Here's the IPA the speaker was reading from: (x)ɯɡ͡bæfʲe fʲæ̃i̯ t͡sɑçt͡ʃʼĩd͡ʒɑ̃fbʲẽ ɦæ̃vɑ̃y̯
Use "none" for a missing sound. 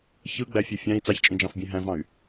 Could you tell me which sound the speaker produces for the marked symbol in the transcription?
ç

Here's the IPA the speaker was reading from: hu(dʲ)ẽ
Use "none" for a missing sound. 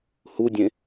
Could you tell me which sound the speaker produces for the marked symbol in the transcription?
dʲ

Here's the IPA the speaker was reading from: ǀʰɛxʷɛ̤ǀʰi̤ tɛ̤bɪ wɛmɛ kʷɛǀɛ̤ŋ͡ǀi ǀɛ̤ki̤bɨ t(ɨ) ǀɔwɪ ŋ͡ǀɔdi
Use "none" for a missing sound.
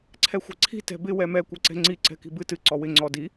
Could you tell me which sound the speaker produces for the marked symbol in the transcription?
ɨ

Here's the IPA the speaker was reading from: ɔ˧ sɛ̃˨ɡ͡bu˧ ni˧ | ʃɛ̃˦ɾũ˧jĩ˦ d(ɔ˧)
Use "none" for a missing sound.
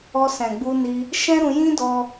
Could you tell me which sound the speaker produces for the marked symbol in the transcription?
ɔ˦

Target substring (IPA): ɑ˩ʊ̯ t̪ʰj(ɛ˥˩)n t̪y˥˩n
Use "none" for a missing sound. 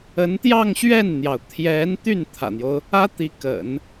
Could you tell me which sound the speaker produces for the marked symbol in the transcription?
ɛ˧˥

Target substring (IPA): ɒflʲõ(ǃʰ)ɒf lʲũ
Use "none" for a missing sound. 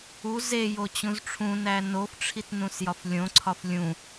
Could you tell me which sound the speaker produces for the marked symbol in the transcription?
ǀʰ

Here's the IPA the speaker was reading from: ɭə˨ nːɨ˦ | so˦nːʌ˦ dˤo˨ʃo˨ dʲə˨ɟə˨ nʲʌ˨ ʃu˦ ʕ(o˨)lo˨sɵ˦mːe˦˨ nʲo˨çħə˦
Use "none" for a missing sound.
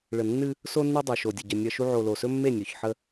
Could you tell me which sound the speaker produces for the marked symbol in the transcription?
o˨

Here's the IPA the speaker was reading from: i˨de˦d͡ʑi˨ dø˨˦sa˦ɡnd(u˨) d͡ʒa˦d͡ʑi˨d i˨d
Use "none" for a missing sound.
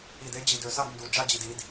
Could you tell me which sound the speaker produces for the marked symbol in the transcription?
u˨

